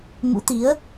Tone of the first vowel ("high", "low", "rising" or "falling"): rising